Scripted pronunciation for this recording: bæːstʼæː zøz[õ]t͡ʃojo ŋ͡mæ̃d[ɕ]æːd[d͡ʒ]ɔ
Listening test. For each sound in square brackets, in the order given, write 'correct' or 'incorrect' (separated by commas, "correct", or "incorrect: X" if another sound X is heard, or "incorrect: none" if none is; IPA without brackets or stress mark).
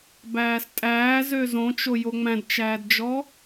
correct, incorrect: t͡ʃ, correct